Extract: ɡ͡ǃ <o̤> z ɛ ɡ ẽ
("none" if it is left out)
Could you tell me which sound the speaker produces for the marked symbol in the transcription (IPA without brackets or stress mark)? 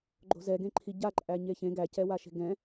o̤